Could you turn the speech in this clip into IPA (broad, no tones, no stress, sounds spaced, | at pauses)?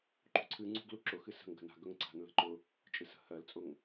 ǃ ṳ ǀʰ ɨ ŋ͡ǀ ṳ ɡ l u ǁ ʊ x ɨ s ə̤ ŋ ɡ ə̤ n a̤ ɡ ɵ ŋ ǀ a̤ n l ə̤ ǃ ʊ | t͡ʃʼ ɨ s ə̤ h ɜ l t͡sʼ ʊ ŋ